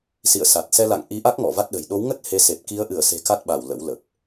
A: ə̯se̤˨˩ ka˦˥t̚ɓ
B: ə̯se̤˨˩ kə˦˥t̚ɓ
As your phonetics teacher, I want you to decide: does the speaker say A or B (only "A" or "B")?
A